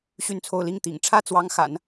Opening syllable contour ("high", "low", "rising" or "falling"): falling